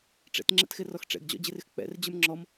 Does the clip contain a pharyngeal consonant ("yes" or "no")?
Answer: no